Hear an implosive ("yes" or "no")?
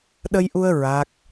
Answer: yes